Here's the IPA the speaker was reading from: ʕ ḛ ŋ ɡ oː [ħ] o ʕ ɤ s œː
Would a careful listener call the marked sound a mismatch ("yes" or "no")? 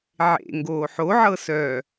no